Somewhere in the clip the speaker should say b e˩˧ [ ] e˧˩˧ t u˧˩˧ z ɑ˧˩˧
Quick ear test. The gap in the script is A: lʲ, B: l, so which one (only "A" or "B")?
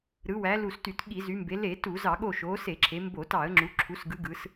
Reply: B